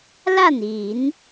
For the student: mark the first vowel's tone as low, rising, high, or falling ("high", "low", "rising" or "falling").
falling